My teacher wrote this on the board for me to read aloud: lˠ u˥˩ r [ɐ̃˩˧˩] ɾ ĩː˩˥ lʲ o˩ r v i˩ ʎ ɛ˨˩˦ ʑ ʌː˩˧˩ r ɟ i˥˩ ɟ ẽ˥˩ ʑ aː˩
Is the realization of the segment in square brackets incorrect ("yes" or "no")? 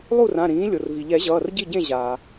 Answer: yes